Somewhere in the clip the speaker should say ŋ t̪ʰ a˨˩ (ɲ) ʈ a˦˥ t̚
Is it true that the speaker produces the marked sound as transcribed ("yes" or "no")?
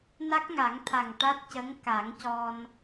no